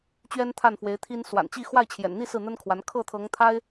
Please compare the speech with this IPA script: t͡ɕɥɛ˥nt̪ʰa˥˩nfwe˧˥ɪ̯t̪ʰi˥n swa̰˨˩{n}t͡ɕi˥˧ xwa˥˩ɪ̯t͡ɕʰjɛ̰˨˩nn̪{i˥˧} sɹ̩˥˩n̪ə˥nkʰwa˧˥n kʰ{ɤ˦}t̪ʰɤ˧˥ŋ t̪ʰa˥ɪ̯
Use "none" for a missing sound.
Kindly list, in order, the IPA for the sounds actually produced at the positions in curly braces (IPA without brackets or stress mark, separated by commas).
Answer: n, i˥˧, ɤ˥˩